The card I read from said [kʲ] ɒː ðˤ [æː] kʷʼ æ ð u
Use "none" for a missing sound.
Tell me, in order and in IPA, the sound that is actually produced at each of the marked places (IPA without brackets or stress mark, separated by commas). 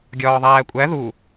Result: ɡʲ, æː